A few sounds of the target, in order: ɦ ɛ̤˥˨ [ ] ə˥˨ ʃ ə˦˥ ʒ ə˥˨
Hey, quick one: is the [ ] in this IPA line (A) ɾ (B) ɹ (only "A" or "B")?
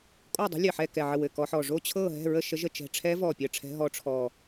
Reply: B